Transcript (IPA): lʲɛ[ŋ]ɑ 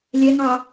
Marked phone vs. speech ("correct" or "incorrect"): correct